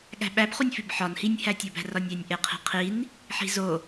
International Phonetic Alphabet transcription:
ɠ æ̤ ɓ æ b χ u nʲ f i b ħ ɒ n h i nʲ h æ tʲ o b æ̤ r ɒ nʲ æ nʲ ʔ e qʰ i̤ qʰ i n | ħ i̤ z o

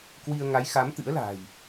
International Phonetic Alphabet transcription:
k w i˧ ə̯ ŋ a˨˦ j x a˨˦ m t̪ ɨ̰˧˥ ə̯ l a̤ː˨˩ j

